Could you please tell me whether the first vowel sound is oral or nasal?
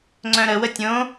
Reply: nasal